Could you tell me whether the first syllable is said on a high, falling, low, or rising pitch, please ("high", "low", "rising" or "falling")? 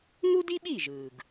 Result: high